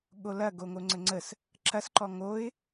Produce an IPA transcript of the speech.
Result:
ɠ o l ɐ ɡ o ŋ o ŋ͡ǀ ə ŋ͡ǀ ə s | ǁ ɐ s ǃ ɔ ŋ o ɪ̯

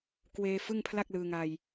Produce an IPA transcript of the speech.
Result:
k w eː˧ f ɯ˥˩ ŋ pʰ l a˥˩ k̚ l ɯː˧ ŋ a˧ j

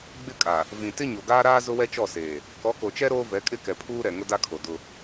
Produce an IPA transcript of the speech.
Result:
ɡ͡b ɪ˦ kʼ a˨ | v ĩ˨ t ɪ˦ ɲ o˨ ɡ aː˦ ɾ aː˦ z ʊ˦ w ɛ˦ t͡ʃ ɔ˦˨ s eː˨ | k ɔ˨˦ k o˨ t͡ʃ ɛ˦ ɾ oː˦ v ɛ˨˦ kʼ ɪ˦ k ɛ˨ pʰ uː˦ ɾ ɛ˨ ŋ ʊ˦ d a˦ kʰ o˨ d ʊ˦

